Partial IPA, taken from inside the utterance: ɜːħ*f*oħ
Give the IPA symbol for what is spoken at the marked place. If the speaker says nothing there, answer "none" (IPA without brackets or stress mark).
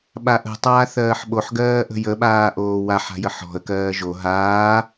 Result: ɓ